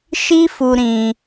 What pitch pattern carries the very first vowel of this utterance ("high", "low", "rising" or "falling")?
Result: high